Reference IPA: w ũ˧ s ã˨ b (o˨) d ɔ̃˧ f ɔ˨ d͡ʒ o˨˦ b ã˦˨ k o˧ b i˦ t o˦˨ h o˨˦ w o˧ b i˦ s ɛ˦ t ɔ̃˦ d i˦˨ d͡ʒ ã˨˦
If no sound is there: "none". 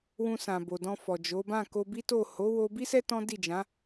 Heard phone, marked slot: o˨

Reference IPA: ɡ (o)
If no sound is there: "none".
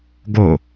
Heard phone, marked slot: o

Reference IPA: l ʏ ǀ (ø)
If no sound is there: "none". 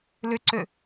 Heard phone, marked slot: ø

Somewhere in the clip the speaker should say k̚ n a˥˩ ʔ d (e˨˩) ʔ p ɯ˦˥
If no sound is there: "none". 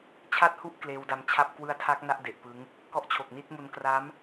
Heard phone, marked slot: e˨˩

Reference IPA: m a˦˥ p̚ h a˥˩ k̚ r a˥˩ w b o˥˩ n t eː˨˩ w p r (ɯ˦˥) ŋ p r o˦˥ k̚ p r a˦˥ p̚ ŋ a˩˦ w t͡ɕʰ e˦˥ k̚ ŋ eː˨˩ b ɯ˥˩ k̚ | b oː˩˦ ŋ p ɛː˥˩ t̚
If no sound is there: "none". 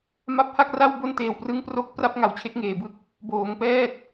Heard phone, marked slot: ɯ˦˥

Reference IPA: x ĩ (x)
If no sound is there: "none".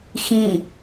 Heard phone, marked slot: none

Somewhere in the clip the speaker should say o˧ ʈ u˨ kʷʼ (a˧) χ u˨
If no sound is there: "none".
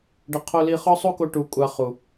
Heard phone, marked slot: a˧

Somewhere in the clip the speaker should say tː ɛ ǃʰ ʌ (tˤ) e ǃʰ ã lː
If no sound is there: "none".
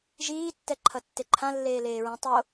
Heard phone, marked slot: tː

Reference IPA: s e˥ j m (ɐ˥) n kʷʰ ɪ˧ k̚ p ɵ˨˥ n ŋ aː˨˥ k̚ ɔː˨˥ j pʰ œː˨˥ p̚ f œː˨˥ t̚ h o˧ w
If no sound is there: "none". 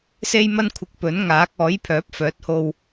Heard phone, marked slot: ɐ˥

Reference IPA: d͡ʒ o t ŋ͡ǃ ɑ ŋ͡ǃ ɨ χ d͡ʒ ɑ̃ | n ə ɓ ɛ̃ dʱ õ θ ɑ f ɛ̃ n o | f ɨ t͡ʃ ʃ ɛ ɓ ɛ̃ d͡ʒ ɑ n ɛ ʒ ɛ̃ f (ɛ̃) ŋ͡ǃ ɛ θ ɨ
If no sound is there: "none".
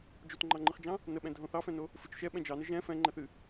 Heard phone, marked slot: ɛ̃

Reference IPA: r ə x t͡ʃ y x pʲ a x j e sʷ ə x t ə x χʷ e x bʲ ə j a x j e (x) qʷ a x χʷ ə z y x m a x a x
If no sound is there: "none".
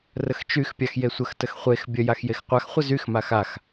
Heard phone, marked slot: x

